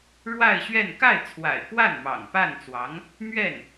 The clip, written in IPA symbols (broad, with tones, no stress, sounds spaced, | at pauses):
ɻ w a˥˧ ɪ̯ ɕ ɥ ɛ˥˧ n k a˥˩ ɪ̯ t͡sʰ w a̰˨˩ ɪ̯ k w a˥˩ n m ɑ̰˨˩ ŋ p a˥˩ n t͡s w ɑ˧˥ ŋ | m ɥ ɛ˥˩ n